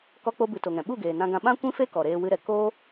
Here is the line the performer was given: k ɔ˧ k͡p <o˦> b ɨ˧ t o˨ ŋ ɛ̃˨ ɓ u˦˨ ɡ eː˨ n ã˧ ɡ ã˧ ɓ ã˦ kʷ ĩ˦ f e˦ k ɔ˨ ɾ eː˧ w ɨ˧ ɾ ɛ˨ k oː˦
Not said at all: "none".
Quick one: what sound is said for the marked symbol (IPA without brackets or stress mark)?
o˧